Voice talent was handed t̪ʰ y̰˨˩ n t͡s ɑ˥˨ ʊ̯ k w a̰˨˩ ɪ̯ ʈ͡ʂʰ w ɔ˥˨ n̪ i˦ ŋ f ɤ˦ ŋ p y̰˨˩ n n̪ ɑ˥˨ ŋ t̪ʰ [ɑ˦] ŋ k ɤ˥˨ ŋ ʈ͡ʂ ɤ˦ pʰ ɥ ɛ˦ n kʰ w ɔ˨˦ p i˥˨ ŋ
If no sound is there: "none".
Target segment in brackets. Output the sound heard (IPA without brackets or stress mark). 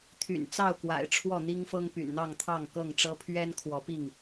ɑ˥˨